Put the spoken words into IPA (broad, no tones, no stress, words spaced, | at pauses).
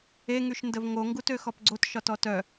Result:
eŋyʃndəv ŋoŋɡut øxɔpɡ͡ǀot ʃɒtɔtœ